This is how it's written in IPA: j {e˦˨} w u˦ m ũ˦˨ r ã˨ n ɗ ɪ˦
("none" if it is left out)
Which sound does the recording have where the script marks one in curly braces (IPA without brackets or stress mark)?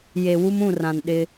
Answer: e˨